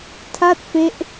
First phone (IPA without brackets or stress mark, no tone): tʰ